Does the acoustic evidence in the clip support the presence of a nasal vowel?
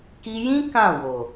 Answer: yes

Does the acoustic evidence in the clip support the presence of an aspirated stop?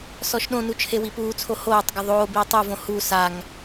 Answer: yes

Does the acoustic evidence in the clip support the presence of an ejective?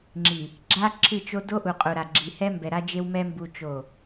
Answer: yes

